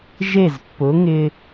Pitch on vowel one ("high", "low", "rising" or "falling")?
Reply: falling